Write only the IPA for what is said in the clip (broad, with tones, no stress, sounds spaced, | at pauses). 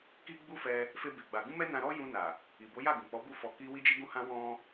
k i˦ ɡ͡b u˦ f ɛ˧ | f e˦ b e˧ ɡ͡b a˧ ɡ ũ˦ m ɛ˦ n ã˧ ɾ ɔ˦ j ũ˧ n a˨ | i˨ b o˨˦ j a˦˨ ɡ ũ˨ k͡p ɔ˨˦ b u˦ f ɔ˧ k i˦ w i˦ d͡ʒ i˦ ɡ ũ˦ h ã˦ w ɔ̃˦